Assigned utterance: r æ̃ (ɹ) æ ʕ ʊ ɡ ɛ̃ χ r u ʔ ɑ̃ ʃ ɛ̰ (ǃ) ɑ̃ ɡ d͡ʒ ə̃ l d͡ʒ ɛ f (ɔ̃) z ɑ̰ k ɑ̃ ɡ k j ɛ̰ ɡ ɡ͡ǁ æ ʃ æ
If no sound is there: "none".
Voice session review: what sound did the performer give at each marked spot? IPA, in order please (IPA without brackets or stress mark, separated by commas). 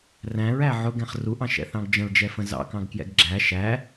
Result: ɹ, θ, ə̃